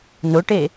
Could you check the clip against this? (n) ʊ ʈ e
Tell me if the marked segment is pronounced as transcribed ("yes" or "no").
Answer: yes